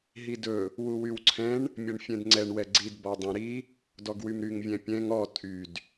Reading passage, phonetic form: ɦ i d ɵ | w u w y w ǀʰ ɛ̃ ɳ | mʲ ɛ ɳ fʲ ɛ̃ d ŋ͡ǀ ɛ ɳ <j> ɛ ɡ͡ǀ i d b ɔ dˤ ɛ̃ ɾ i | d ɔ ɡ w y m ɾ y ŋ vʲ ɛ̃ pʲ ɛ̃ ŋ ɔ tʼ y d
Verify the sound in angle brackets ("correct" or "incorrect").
incorrect